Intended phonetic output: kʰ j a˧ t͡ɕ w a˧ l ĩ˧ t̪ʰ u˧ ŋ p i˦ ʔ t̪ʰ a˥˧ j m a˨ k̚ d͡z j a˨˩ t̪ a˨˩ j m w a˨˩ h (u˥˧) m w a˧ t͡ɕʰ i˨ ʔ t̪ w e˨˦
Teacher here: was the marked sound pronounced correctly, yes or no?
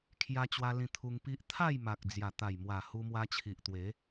no